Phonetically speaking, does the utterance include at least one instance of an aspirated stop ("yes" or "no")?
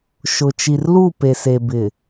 no